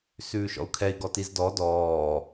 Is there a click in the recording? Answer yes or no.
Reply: no